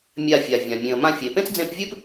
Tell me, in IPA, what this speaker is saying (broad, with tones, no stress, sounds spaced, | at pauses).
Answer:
mʲ a˧ fʲ a˨ vʲ ã˨ mʲ ẽ˨ ə̯ m ã˧ fʲ e˨ p ẽ˦ t͡s d͡z ẽ˧ p vʲ ɨ˦ p